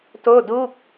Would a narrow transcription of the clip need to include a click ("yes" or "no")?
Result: no